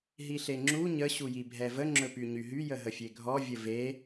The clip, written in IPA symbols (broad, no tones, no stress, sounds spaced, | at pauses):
ɦ i ɬ e ŋ͡ǁ u ɲ ə ɕ u j i bʱ ɛ v ə ŋ͡ǁ ɵ p y ɲ y ɦ y j ə ɦ ə fʲ e ɡʱ ɔ vʲ ə v e